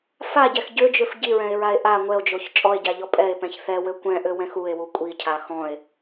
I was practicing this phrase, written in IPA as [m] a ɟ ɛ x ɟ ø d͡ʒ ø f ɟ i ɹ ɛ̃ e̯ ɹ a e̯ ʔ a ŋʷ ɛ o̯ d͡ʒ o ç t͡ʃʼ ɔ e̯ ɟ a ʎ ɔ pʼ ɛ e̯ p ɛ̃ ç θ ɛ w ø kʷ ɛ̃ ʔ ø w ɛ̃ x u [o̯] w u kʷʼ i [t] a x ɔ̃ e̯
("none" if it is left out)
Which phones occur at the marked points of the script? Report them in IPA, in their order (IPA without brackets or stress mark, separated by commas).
f, e̯, cʰ